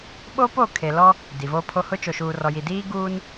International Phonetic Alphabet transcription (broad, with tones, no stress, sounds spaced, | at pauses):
ɓ o˦ p o˦˨ kʰ e˨ l ɔ˦ | d i˨ v oː˦ pʰ o˦ h ʊ˦ t͡ʃ o˨ ʃ uː˨ r ɔ˨ j i˨ d iː˦ ɡ uː˦ n